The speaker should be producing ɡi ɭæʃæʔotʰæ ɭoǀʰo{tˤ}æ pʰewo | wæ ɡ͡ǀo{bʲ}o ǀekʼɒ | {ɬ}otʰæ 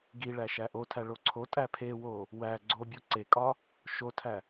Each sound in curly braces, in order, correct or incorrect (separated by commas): incorrect, correct, incorrect